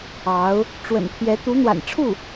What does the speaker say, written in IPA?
ɑ˧˥ ʊ̯ | ʈ͡ʂ w ə̰˨˩ n pʰ j ɛ˧˥ t̪ u˧˥ n̪ w a̰˨˩ n ʈ͡ʂʰ u˥˩

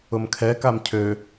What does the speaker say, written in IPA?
ʊ m kʰ ɛ k a m cʰ ø

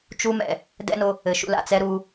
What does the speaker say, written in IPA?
t͡ʃ u˦ m ɛ̰˨ | d ɛ̰˦ n o˧ | ɘ˨ ʃ ṵ˧ l a̰˨ t͡s ɛ˦ ɾ u˧

